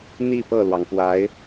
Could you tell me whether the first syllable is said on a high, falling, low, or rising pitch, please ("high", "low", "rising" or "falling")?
falling